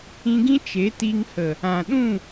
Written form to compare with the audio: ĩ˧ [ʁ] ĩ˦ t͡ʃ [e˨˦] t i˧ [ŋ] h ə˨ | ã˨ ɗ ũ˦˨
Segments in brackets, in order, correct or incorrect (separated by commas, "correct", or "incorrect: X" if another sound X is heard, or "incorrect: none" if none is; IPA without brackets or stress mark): incorrect: ɡ, correct, correct